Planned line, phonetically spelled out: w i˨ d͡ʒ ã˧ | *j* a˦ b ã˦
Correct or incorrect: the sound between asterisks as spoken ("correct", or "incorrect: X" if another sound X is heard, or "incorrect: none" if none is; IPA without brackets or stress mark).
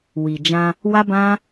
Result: incorrect: w